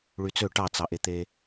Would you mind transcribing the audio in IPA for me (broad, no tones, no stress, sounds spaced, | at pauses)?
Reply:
ɭ y t͡s ø ʈ ɑ t͡s ɑ ʔ e t̪ e